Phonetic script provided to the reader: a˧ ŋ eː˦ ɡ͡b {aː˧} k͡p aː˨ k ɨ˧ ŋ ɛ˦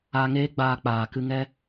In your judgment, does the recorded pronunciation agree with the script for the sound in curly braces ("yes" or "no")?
yes